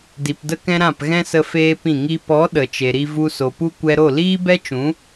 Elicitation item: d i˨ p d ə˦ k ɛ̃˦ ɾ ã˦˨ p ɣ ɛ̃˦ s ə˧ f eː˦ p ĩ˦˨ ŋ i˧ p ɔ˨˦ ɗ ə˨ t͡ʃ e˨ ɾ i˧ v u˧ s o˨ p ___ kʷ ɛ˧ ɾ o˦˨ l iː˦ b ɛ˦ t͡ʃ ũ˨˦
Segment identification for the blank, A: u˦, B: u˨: A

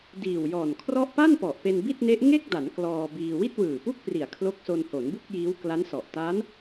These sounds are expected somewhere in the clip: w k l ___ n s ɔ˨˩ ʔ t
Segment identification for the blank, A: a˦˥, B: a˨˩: A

